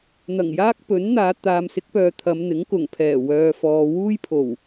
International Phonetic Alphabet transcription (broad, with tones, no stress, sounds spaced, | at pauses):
n̪ ɐ˨˩ ŋ j aː˥ k̚ p ɵ˨˥ n n̪ aː˨˧ t̪ aː˨ m s ɪ˨˥ k̚ p œː˨ t̪ʰ ɐ˨˧ m n̪ ɪ˨˥ ŋ k ʊ˨˩ ŋ pʰ ɛː˨˩ w œː˨ f ɔː˨ w uː˥ j pʰ o˨˩ w